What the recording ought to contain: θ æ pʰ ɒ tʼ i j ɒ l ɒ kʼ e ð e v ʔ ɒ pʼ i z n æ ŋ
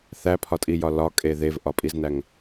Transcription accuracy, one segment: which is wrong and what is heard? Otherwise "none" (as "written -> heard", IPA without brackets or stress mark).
none